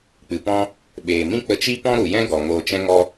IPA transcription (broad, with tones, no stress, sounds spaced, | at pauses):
k͡p ɨ˨ p ɔ̃˦ | ɓ eː˨ m ĩ˦ k͡p ə˧ t͡ʃ i˦ p ɔ̃˦ ɾ u˨ j ɛ̃˦ ɡ ɔ˨ ŋ oː˧ t͡ʃ ɛ̃˦ ŋ ɔ˦